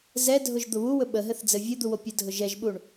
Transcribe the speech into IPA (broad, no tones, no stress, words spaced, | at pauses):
zɛdʱʊʒ d̪ʊβuwɵ ɓəɦɘθ d͡zɘvʲɘd̪u wopʲədʱʊ ʒɛʒɓuɳ